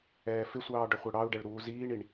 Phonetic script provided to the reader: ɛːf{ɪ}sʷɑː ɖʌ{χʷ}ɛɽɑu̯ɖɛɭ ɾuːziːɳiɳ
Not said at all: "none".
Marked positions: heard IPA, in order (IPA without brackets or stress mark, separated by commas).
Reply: ɪ, χʷ